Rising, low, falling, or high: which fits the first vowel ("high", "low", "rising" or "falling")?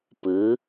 rising